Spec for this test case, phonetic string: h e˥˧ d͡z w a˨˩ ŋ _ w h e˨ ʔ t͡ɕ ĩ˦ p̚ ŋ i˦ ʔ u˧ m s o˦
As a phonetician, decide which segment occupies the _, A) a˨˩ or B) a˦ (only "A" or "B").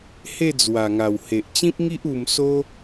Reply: A